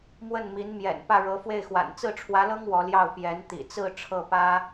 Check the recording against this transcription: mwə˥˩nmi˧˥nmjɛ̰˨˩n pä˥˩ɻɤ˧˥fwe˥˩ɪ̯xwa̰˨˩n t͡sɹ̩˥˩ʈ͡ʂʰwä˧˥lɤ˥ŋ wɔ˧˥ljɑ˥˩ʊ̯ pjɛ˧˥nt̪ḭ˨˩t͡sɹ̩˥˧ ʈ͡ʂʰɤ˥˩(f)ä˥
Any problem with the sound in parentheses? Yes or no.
yes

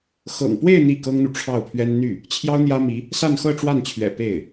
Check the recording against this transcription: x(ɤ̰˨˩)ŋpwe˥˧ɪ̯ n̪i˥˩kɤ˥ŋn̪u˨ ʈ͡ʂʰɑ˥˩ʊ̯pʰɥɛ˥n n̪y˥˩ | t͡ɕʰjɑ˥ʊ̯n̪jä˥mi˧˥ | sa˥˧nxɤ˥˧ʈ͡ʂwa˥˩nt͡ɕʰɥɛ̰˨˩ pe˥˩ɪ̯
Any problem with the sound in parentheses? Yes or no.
no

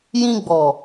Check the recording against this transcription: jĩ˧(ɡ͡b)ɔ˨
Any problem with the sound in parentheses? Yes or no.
no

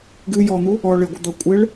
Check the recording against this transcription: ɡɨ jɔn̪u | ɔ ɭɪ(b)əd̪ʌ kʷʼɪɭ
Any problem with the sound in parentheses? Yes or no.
yes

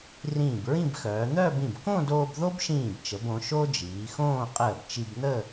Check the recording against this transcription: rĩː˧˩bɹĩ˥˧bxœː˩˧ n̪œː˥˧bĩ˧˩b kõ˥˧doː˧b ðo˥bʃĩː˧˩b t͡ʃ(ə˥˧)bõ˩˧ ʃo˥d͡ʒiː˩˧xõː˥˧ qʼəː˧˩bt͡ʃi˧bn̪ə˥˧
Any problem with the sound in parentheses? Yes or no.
yes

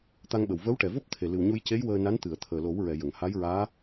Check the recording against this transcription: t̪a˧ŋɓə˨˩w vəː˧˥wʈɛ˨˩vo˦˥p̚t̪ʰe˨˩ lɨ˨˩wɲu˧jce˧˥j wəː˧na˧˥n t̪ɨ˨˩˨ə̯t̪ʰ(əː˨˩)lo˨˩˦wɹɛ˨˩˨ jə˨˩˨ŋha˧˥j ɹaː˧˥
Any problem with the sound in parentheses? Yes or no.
no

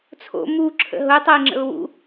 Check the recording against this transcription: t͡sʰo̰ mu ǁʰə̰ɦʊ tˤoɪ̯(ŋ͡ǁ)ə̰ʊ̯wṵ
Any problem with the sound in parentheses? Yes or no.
no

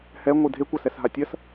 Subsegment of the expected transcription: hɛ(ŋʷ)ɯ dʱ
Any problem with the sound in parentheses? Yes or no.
no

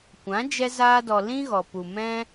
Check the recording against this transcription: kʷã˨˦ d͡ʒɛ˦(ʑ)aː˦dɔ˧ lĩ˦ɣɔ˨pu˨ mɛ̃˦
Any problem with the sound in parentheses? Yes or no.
yes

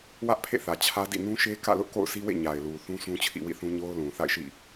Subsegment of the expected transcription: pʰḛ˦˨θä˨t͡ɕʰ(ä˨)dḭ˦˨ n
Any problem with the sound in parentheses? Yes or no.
yes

